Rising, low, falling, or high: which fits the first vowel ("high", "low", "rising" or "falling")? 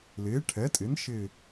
rising